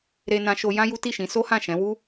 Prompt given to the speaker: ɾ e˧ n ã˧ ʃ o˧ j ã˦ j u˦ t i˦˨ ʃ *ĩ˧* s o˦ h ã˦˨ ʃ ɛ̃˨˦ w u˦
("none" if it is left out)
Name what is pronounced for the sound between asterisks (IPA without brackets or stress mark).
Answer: ĩ˨˦